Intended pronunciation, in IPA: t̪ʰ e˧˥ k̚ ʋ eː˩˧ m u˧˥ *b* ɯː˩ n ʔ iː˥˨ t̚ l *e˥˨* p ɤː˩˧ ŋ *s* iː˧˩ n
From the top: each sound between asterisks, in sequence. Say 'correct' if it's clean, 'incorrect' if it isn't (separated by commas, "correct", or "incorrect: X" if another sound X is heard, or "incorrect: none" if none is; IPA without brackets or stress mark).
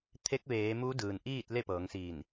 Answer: incorrect: d, correct, correct